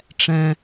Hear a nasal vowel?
yes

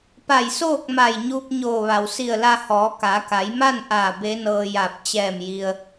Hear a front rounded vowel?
no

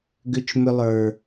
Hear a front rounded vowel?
yes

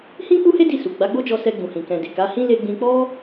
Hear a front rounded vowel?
no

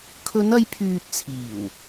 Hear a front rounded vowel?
yes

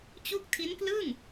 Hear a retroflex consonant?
no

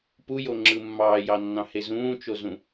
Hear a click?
yes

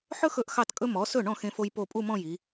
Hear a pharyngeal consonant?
yes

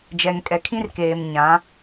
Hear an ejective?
yes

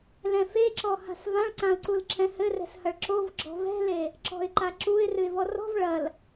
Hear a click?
yes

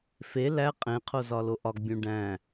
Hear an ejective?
yes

